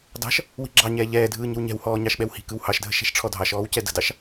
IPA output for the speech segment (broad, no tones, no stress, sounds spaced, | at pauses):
d ɑ̤ ʃ | w i̤ ɡ͡ǁ ɑ ɲ ɛː ʎ ɛː dʱ ɯː ɲ ə̤ w ɲ ɛ̤ w h ɔː ɲ ɑ ʃ ɓ ɛ w h i̤ k ɯ w h ɑ ʃ dʱ ə̤ ʃ ɛ̤ ʃ ʈ͡ʂʰ ɔ dʱ ɑ ʃ ɔː w c ɛ d ə̤ d ɑ ʃ